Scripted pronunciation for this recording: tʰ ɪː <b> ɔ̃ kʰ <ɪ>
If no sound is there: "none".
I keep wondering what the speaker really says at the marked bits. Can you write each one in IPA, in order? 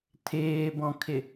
b, ɪ

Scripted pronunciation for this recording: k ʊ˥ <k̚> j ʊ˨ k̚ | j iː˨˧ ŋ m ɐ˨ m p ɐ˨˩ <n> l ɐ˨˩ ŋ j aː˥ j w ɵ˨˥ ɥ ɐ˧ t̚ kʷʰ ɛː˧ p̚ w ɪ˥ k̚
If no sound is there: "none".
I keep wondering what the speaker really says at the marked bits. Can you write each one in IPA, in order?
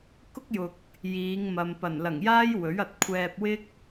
k̚, n

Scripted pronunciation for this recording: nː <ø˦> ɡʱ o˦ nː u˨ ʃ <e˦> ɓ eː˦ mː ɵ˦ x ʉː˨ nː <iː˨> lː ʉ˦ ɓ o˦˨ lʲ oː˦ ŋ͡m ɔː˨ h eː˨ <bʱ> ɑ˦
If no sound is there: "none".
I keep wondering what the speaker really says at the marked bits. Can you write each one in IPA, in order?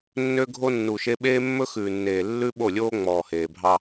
ø˦, e˦, eː˨, bʱ

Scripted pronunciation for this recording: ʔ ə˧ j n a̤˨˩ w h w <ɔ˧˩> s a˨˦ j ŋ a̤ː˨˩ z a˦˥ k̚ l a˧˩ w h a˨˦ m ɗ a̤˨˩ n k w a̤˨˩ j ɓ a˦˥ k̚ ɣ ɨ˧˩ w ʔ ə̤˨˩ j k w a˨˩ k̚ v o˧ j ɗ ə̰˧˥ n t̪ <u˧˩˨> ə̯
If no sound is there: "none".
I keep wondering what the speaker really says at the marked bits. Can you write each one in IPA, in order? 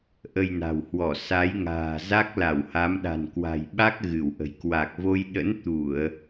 ɔ˧˩, u˧˩˨

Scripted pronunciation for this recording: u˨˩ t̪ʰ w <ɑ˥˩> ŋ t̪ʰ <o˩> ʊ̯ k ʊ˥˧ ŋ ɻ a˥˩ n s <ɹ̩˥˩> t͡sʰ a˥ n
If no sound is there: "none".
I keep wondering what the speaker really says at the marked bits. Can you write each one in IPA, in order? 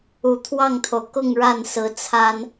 ɑ˥˩, o˩, ɹ̩˧˥

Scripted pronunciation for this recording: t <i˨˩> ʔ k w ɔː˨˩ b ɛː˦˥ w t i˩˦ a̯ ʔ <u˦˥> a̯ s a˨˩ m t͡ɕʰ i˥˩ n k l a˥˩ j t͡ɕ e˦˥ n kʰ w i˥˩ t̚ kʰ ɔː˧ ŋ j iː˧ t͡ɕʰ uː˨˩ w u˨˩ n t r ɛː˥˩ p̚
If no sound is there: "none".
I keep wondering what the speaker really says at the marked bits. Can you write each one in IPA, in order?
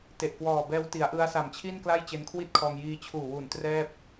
e˨˩, ɯ˦˥

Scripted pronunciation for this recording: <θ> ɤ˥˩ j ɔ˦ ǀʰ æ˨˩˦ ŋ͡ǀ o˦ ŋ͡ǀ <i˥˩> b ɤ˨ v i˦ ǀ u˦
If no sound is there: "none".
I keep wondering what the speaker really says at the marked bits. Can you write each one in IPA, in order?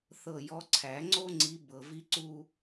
θ, i˨˦

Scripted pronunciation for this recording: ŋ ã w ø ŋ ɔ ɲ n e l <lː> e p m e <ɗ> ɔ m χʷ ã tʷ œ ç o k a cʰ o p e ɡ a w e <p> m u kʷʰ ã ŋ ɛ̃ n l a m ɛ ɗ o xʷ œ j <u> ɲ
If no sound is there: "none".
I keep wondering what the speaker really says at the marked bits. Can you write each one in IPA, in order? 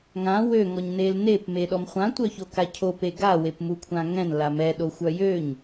n, ɗ, p, ø

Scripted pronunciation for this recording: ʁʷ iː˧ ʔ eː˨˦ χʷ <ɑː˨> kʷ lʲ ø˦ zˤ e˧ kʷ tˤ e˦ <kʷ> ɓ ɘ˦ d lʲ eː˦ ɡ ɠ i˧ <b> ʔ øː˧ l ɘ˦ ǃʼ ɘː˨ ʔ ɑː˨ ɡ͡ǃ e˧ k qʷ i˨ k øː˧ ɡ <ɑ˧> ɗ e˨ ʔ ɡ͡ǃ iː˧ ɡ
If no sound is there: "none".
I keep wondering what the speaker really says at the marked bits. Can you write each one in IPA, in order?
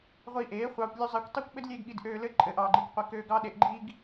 ɑː˧, kʷ, d, ɑ˧

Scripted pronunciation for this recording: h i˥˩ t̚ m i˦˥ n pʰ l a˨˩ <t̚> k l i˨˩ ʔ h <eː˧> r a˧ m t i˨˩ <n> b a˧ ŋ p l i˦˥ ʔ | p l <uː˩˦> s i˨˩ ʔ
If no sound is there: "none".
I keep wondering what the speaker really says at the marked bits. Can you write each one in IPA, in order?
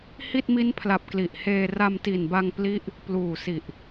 p̚, eː˧, n, uː˨˩

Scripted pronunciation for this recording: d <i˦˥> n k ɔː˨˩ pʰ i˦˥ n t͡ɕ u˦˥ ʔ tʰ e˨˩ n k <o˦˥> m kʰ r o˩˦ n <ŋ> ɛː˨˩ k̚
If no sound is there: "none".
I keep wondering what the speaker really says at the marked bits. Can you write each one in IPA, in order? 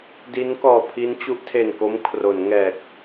i˦˥, o˦˥, ŋ

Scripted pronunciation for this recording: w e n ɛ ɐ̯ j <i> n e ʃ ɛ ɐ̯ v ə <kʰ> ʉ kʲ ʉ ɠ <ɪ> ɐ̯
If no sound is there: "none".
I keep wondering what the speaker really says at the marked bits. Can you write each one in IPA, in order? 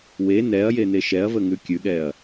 e, ŋ, ɛ

